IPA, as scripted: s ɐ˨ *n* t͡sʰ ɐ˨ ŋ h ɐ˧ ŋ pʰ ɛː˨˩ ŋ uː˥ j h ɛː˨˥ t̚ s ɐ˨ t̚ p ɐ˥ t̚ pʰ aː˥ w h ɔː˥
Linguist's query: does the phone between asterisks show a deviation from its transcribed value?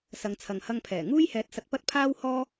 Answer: yes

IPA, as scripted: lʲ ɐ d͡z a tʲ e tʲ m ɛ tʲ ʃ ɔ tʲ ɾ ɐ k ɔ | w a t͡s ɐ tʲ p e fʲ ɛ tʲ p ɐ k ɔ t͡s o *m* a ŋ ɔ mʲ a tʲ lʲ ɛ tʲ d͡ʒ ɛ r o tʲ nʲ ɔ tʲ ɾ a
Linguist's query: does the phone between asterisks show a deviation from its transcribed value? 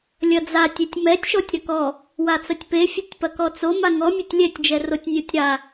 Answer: no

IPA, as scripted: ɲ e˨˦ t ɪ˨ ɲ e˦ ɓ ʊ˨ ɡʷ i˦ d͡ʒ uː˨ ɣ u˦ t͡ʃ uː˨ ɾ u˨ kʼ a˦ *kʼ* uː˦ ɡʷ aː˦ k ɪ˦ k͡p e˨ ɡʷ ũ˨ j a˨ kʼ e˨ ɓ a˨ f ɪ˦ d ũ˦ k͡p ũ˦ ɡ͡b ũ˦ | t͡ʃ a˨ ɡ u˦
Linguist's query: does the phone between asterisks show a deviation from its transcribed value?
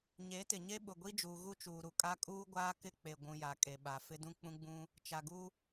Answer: no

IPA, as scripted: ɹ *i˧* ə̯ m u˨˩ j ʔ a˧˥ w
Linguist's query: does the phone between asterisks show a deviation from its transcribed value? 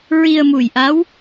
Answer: no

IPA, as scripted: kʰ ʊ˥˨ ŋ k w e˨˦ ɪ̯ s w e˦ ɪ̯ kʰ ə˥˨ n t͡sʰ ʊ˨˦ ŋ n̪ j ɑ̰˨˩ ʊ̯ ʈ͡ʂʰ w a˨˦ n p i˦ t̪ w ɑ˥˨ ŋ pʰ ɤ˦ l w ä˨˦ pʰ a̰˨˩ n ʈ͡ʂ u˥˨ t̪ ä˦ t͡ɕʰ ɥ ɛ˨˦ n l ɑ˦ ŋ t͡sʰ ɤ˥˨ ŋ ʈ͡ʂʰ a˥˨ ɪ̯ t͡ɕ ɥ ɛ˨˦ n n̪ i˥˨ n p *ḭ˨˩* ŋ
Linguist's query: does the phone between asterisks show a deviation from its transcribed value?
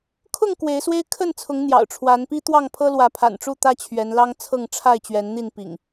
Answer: no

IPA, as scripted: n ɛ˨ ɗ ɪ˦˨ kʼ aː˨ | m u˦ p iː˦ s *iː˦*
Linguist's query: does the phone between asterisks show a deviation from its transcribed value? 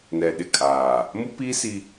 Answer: yes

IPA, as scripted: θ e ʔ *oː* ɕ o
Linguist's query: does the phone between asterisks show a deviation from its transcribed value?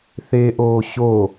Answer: no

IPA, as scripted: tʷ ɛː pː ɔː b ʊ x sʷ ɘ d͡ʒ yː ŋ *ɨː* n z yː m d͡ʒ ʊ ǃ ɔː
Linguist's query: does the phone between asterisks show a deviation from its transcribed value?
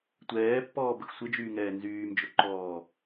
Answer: yes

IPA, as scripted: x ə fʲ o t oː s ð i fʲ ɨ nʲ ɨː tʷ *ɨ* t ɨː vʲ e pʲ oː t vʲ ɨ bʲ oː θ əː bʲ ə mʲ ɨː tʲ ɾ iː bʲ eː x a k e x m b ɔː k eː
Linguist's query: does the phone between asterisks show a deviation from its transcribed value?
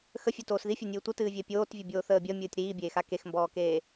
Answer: yes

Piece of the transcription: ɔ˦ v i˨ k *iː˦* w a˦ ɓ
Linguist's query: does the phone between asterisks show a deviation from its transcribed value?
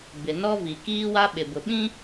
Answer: no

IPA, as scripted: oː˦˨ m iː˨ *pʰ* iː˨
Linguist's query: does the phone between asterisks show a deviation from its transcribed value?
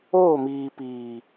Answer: yes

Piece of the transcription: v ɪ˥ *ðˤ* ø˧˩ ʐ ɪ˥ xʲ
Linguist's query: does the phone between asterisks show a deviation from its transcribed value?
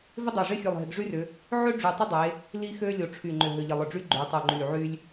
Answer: yes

